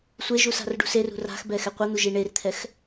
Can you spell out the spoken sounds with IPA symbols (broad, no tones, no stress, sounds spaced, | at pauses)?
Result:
sʷ e ʒ u s a̤ r ɖ ṳ s e r ṳ r a̤ x b ɛ x ɛ qʷ ʌ n̪ u ʒ i ɳ e r t̪ʰ ɛ x